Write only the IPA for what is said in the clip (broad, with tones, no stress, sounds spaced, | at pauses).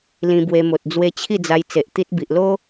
l ĩ˧ b w e˧ m o˨ t̚ d͡z w e˧ t͡ɕʰ i˥˧ d͡z a˧ j t͡s e˨ ʔ t̪ i˦ t̚ b i˨ ʔ l o˦